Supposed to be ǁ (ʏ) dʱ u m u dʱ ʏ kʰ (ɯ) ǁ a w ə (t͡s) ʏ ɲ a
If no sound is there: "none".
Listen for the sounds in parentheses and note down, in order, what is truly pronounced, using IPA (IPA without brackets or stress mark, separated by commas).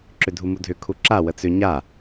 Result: ʏ, u, t͡s